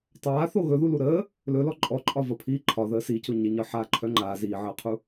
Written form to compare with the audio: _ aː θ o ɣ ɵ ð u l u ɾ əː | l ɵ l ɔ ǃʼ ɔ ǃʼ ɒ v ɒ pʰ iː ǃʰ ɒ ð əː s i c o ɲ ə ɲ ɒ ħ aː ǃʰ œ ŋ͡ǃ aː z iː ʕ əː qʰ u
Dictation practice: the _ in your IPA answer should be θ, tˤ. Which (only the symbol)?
tˤ